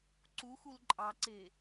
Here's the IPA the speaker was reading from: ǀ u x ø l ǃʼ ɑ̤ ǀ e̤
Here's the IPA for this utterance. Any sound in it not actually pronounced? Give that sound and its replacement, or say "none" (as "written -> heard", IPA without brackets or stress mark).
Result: ø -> u